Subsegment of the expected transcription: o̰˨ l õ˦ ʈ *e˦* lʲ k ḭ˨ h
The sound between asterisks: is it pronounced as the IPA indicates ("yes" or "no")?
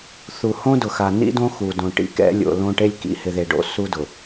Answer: yes